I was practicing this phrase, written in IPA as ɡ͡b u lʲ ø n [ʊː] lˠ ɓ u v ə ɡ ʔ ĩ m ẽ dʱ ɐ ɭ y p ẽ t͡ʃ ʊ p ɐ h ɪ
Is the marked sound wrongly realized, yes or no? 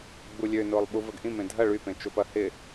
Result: no